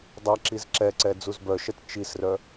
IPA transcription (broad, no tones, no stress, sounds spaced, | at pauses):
dˤ ɛ ǁ i z ǁ ɛ ǀ ɛ d͡z u z b œ ʃ ɛ t t͡ʃ i s r œ